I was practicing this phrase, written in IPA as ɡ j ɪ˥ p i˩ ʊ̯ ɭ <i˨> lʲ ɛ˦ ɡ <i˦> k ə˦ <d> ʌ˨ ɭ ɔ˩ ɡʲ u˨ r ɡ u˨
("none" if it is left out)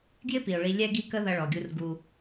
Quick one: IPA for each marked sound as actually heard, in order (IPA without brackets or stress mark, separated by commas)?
i˨, i˦, ð